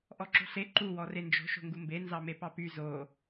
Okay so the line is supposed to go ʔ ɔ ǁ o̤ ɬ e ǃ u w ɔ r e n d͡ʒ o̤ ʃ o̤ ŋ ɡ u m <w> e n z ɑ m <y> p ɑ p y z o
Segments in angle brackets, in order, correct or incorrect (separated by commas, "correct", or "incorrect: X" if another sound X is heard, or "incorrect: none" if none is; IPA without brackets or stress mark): incorrect: b, incorrect: e